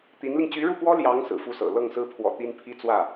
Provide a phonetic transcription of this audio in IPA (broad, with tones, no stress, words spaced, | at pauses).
t̪i˧˥nli˧ŋ t͡ɕy˧˥ɻu˥˩pwɔ˥ ljɑ˧˥ŋ sɹ̩˨˩fu˥˩sɤ̰˨˩ lɤ˥˩ŋsɹ̩˥pʰwɔ̰˨˩ t̪i˥npʰi˥ t͡swä˥˩